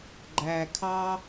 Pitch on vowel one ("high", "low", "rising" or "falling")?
high